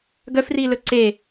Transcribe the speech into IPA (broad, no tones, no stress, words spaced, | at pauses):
ɡœfrilɵ ǀe